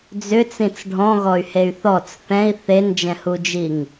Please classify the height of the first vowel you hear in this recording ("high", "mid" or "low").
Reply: high